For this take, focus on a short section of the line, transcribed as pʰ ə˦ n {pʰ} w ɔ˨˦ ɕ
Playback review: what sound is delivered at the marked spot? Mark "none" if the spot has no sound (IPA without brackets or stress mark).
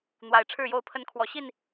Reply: kʰ